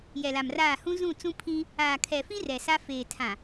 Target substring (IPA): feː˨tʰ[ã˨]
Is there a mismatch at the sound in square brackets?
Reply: no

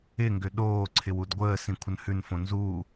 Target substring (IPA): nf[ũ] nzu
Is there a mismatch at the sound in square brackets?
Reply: yes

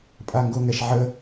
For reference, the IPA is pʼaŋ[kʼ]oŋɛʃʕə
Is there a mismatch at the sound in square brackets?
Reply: yes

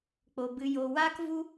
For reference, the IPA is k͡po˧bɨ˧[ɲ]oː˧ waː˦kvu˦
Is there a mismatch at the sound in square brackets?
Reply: yes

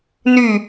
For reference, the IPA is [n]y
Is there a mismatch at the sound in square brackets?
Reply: no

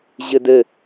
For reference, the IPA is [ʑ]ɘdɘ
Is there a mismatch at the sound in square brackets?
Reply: no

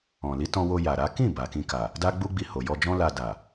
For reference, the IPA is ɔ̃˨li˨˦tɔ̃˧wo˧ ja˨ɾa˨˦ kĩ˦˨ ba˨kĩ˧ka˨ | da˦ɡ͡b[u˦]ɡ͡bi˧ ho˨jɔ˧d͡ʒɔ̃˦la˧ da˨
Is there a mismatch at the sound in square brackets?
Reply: no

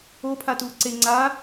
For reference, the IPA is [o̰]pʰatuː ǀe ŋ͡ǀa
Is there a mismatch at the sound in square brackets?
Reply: yes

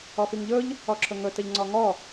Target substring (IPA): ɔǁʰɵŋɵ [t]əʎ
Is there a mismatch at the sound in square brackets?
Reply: no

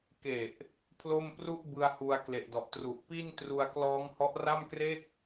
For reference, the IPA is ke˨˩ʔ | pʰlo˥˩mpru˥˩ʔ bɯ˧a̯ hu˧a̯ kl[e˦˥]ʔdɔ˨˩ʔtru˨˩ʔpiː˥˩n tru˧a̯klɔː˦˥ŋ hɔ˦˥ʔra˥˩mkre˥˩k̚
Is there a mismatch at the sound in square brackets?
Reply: yes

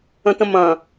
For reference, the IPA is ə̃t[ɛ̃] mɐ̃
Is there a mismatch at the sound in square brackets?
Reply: yes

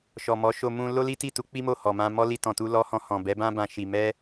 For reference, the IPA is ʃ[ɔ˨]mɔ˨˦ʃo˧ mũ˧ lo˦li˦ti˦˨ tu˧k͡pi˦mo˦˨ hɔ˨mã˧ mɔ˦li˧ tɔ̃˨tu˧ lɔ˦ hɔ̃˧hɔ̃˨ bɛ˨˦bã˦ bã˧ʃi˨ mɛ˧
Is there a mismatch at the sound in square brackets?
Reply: no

